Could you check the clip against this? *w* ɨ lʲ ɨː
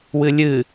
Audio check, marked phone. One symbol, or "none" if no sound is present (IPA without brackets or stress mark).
w